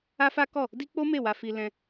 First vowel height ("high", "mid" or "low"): low